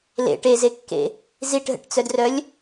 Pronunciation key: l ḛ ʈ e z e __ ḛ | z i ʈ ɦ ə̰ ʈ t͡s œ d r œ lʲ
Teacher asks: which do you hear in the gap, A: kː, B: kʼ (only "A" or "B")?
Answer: A